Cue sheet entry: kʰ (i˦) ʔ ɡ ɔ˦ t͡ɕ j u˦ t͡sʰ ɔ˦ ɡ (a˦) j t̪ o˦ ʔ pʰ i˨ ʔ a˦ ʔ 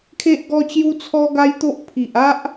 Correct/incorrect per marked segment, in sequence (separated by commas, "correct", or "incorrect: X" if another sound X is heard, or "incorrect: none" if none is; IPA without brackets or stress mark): incorrect: e˦, correct